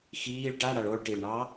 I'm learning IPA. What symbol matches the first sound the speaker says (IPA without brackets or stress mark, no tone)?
x